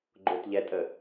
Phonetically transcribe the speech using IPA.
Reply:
ɡ͡ǃ ʊ t ʎ ɛ tʼ ə

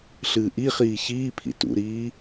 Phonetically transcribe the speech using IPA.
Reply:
ɬ ɨː ʔ i χ iː ç iː pʰ ḭ t ṵ ɾ iː

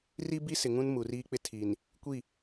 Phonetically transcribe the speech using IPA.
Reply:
r i˦ b i˦ s ɪ˨ ŋ ũ˦ n m u˨ r iː˦ k͡p ɪ˦ tʰ i˨ n | kʷ i˦˨

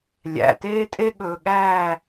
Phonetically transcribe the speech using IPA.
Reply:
lʲ æ̰˨ t eː˦ tʼ e˦ ɠ ɵː˨ ɠ æː˦˨

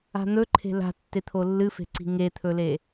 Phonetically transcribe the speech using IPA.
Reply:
a̤ n̪ ɵ ǃʰ e̤ l a̤ tː e t̪ʰ o lː ɨ f e̤ ǀ i̤ ŋ e t̪ʰ ɵ l e

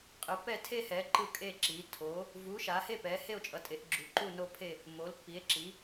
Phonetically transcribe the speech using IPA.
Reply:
qʼ ɯ˨˦ p ɛ˥˧ tʰ e˥˧ h ɛ˨˦ ǃ ɯ˥˧ kʼ e˥˧ ǁ i˨˦ tʰ o˨˦ | v u˨˦ ʃ a˨˦ h e˥˧ p ɛ˨˦ h e˥˧ o̯ t͡ʃʼ ʌ˨˦ tʼ e˨˦ ʔ ɡ͡ǁ u˨˦ ǃ u˥˧ n o˥˧ pʰ e˥˧ | m o˨˦ l pː i˨˦ e̯ ǁ i˨˦

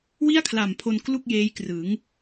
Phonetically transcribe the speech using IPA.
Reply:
w i˥˩ a̯ kʰ l a˨˩ m pʰ o˧ n k l u˥˩ k̚ j eː˦˥ j k r ɯ˩˦ ŋ

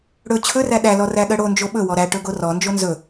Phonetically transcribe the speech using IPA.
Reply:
ɽ ɵ t͡ɕʰ ɵ r æ ɗ æ l ɔ r æ ɠ ɜ ɽ o n d͡ʒ o ɓ ɵ w ɔ ɾ æ ʈ ɵ ɡ o r ɔ n d͡ʒ o n z ɵ

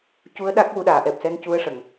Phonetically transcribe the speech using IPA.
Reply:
c u˧˥ ə̯ ɗ a˦˥ k̚ w u˧ ɗ aː˨˩˨ ʔ ɛ˨˩ p̚ s ɛ˧˥ n c u˧˥ ə̯ ʂ ə˨˩˨ ŋ

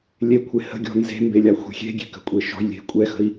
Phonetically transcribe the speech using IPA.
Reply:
lʲ e kʷʰ e h ə̤ ɡʲ ɔ̤ n z e̤ m b e lʲ a xʷ e̤ xʲ e̤ ɡʲ e̤ k ə̤ kʷʼ e ʃ ɔ̤ j lʲ e̤ kʷʼ ɛ x ə̤ i̯

